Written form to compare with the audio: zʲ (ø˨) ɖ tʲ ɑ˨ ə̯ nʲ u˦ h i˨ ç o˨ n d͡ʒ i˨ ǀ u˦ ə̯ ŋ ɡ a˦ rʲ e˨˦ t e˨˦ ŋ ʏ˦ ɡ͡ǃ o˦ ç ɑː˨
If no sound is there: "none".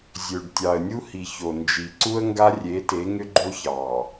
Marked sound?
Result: ø˨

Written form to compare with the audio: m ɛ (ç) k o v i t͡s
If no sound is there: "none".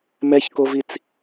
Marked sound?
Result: ç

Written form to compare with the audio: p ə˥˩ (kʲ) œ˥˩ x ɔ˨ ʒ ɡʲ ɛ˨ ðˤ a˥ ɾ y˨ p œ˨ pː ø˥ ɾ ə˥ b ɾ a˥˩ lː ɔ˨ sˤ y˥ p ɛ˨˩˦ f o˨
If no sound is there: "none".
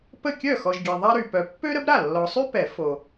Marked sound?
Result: kʲ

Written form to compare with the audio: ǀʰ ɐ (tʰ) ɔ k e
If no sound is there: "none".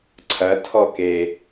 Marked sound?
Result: tʰ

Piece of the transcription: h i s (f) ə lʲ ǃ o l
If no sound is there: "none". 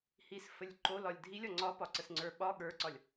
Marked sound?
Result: f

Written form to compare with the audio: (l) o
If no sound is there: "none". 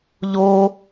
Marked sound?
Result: ʎ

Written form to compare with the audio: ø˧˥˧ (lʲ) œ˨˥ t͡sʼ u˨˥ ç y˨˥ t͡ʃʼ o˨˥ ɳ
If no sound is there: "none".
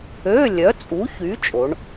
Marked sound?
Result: lʲ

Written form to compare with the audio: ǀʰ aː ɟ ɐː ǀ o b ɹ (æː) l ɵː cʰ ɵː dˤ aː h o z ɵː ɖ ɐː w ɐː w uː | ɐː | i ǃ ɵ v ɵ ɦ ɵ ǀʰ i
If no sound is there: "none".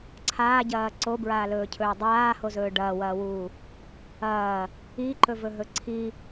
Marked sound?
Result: aː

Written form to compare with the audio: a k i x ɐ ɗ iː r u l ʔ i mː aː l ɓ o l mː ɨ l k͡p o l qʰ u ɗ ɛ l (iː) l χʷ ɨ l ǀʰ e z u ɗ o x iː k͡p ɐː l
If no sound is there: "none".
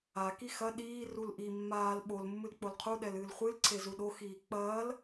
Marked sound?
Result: ɨː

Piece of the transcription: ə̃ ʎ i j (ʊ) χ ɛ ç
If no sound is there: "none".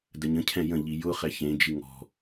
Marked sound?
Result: ʊ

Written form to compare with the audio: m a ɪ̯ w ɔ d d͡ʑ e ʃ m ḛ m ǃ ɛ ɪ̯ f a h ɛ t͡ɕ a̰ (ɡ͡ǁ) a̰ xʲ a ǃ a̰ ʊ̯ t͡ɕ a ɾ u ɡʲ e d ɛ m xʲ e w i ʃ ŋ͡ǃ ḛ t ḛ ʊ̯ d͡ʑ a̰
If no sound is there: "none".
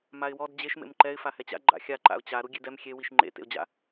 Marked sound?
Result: ɡ͡ǃ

